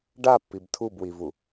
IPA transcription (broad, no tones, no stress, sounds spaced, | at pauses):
ɖ a pː i b tʰ u b w i v u